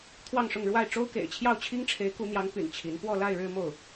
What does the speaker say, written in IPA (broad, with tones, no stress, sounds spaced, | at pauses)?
t̪ʰ w ɑ˥˧ ŋ ʂ ʊ˥˧ ŋ ɻ w a˥˩ ɪ̯ ʈ͡ʂ o˥ ʊ̯ k ḛ˨˩ ɪ̯ t͡ɕʰ j ɑ˥˩ ʊ̯ t͡ɕʰ i˥ ŋ ʈ͡ʂʰ e˧˥ ɪ̯ k u˧˥ n̪ j ɑ˧˥ ŋ p y̰˨˩ n t͡ɕʰ i˧˥ n p w ɔ˥˧ l a˥˧ ɪ̯ ɻ ɻ̩˥˧ m o˥˩ ʊ̯